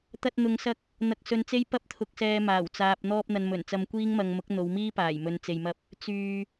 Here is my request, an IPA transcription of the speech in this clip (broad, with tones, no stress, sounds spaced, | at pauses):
t̪ ɐ˧ t̚ n̪ ʊ˨ ŋ s ɐ˧ k̚ | n̪ ɐ˧ k̚ s ɵ˧ n t͡s e˥ j p ɐ˥ p̚ t̪ʰ ʊ˧ k̚ s ɛː˧ m aː˨˩ w t͡s aː˨ p̚ n̪ ɔː˧ p̚ n̪ ɐ˨ n m ɵ˨˩ n t͡s ɐ˧ m kʷ iː˥ ŋ m ɐ˧ ŋ m ʊ˨˥ k̚ n̪ o˨˧ w m iː˥ p aː˨˩ j m ɵ˨ n t͡s e˨ j m ɐ˧ p̚ | t͡s yː˨